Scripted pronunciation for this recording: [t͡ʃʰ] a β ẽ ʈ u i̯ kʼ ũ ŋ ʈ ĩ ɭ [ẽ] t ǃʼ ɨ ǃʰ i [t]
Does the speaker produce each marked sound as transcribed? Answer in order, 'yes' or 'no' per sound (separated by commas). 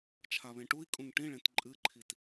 yes, yes, yes